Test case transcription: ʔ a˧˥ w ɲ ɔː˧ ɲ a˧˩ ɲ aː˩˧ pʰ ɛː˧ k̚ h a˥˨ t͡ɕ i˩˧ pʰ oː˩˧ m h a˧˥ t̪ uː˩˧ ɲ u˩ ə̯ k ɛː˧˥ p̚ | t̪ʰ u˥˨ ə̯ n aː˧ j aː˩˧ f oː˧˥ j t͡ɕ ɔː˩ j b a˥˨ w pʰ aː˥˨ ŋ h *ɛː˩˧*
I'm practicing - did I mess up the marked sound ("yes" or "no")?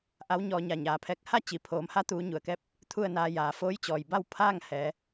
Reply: no